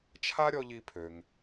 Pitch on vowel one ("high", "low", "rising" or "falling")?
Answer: high